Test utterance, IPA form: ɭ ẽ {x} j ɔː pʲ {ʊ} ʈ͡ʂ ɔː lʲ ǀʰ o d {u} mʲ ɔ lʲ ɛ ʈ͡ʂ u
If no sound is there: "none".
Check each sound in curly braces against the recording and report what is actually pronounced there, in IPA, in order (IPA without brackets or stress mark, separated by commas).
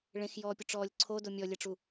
x, ʊ, o